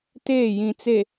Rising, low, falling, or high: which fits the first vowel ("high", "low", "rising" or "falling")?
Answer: falling